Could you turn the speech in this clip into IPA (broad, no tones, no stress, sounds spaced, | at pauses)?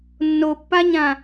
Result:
nː o pː a ɲ ã